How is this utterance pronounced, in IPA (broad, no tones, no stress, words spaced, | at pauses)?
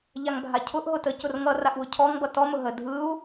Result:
ʎaŋbʱacʰʊʔ ɦʊtə cʊrŋʌ raʔwʊcʰɔŋ bʌtɔ mʊɦə dʱɯu̯